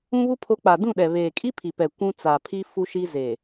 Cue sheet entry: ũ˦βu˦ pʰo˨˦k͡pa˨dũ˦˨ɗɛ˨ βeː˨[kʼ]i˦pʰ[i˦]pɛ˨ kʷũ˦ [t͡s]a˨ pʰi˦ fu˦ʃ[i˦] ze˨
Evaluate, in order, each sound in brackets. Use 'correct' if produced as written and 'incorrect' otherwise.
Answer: correct, incorrect: i˨, correct, correct

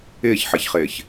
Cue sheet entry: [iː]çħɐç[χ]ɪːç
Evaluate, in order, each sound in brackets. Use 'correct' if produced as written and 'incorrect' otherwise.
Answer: incorrect: ɪː, correct

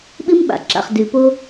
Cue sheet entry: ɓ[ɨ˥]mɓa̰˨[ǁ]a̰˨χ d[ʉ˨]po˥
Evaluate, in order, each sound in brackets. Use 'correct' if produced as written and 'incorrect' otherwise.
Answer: correct, correct, correct

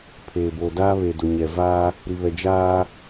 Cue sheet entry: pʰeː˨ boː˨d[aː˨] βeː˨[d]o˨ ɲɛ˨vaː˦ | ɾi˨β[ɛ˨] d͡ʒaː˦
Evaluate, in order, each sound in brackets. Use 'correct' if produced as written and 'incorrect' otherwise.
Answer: incorrect: aː˦, correct, correct

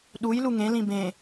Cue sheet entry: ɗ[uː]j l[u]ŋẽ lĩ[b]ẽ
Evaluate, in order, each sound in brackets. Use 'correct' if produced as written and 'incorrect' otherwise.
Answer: incorrect: u, correct, correct

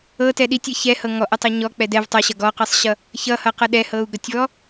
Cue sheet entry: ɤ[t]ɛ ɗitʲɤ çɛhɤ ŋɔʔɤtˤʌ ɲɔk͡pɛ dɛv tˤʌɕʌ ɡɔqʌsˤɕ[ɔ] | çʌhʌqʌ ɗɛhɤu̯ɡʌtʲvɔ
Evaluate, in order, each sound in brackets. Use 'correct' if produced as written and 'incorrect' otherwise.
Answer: correct, incorrect: ʌ

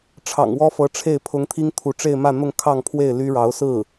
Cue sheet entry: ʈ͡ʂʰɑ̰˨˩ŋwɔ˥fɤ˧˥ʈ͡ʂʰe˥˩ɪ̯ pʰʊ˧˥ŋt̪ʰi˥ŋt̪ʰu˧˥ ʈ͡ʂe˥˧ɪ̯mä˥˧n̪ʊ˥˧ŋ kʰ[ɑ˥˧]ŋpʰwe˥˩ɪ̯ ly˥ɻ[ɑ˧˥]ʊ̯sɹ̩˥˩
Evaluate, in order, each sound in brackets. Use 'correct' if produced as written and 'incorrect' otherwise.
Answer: correct, correct

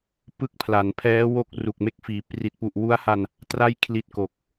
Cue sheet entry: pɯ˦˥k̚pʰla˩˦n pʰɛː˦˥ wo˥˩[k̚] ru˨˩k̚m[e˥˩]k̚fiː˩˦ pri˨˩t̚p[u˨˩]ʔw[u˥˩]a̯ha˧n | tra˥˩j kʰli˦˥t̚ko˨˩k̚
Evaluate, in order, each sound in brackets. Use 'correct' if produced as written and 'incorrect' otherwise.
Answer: correct, correct, correct, incorrect: u˦˥

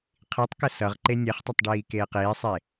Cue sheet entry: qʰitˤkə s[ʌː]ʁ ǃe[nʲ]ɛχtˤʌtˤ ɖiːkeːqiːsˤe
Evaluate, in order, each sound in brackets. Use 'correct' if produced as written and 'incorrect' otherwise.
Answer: incorrect: ʌ, correct

